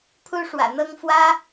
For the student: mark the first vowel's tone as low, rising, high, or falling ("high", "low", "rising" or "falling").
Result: high